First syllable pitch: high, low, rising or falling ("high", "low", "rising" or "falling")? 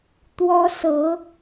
high